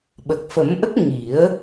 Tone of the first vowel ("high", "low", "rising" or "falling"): low